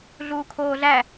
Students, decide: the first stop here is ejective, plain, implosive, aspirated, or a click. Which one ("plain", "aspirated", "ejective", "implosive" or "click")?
aspirated